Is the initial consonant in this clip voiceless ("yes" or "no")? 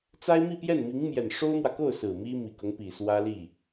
yes